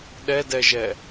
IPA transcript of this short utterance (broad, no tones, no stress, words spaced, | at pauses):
ɗɛdɛʒɛ